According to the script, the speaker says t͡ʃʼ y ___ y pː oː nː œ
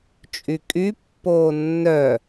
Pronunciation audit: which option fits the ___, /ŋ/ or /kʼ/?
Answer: kʼ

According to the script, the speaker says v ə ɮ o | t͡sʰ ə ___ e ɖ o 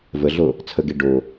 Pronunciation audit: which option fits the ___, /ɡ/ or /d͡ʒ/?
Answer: ɡ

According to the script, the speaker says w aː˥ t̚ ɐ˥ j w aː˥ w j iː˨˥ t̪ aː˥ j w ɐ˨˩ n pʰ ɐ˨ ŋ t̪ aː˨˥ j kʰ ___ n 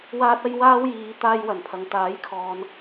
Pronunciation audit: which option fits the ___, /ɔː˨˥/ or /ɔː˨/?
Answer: ɔː˨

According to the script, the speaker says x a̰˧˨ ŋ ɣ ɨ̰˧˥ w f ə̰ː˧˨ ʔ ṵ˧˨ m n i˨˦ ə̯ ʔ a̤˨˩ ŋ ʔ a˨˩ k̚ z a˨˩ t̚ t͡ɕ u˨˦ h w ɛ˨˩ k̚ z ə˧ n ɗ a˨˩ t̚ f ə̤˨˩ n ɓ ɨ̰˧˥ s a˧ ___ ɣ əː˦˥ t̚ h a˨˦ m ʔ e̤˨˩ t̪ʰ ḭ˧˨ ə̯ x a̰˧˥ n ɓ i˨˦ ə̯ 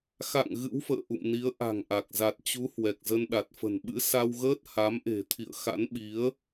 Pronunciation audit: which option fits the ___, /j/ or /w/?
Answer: w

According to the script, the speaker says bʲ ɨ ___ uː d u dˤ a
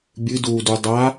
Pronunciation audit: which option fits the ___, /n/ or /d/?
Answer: d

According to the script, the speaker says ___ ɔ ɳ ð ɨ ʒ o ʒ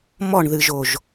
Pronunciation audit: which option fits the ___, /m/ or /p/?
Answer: m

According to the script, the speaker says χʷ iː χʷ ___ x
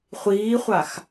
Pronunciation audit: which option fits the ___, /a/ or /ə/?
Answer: a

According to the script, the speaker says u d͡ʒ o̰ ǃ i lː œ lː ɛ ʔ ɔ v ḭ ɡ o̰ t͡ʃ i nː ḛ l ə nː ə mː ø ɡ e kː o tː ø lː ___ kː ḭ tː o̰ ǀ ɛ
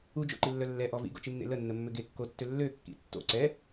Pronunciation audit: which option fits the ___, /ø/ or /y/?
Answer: ø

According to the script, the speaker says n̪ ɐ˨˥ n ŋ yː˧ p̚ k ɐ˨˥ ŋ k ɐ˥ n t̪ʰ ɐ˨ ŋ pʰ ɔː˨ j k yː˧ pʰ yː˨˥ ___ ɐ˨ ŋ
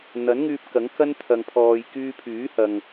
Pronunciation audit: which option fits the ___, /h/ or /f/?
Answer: h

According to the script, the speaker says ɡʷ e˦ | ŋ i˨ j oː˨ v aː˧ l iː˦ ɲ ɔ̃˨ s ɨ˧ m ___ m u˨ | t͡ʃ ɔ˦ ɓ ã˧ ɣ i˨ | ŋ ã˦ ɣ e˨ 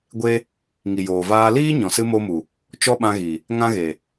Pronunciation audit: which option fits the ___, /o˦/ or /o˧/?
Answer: o˧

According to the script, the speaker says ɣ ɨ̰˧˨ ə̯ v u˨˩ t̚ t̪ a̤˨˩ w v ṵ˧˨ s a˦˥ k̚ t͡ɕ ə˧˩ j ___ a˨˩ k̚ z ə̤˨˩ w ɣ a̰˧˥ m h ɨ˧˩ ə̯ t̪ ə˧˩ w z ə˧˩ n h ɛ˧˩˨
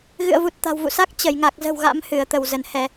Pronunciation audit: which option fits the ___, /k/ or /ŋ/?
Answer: ŋ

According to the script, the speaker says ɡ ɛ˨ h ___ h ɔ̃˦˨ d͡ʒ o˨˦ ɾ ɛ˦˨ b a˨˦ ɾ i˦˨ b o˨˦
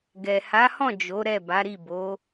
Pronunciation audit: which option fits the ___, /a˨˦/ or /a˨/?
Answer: a˨˦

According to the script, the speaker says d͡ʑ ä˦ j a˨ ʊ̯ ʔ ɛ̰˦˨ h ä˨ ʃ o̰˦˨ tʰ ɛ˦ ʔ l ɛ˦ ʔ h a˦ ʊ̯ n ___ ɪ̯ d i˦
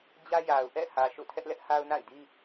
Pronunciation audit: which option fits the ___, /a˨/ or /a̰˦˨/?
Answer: a̰˦˨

